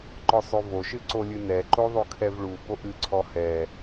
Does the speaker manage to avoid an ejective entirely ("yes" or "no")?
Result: yes